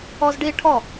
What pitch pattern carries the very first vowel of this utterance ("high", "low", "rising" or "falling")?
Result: high